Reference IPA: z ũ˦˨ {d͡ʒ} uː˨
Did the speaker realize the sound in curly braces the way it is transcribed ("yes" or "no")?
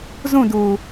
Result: no